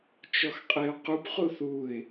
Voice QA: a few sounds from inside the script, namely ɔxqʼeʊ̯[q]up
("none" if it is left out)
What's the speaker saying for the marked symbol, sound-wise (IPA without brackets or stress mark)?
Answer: q